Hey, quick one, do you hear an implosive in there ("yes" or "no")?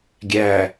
no